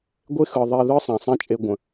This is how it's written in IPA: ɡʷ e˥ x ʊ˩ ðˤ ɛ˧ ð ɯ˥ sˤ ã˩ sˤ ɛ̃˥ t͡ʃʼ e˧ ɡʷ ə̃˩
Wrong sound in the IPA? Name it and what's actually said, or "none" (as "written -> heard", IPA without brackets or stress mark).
ʊ˩ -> ɯ˩